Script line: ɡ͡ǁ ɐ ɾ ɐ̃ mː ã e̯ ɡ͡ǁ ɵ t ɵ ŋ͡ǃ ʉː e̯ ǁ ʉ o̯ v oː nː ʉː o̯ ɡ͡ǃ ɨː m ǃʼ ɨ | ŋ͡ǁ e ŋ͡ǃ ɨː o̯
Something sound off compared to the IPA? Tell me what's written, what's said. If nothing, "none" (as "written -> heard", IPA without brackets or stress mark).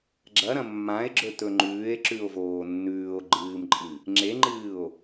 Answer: none